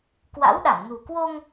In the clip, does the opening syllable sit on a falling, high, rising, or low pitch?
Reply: rising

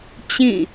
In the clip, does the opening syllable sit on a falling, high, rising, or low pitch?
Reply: falling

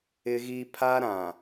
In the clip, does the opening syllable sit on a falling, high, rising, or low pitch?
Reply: high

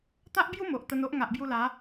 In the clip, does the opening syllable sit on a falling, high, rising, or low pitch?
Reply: high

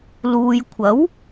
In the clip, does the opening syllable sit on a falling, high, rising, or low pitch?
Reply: low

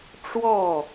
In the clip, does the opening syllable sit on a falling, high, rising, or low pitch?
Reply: falling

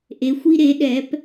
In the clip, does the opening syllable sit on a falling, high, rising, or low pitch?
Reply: rising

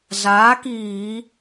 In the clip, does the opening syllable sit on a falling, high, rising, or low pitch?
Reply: rising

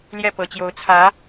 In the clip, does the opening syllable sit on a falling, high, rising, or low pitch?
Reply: falling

